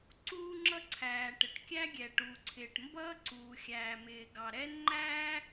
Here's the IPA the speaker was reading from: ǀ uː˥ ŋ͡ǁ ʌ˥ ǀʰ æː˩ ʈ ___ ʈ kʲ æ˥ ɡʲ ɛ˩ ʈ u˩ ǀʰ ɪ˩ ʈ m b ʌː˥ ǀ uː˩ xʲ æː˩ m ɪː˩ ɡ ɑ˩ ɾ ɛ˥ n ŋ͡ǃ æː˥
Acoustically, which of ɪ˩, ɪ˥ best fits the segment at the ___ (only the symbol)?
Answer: ɪ˩